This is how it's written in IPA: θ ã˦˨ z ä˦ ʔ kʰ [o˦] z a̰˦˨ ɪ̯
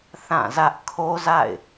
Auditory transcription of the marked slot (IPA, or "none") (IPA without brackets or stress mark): o˦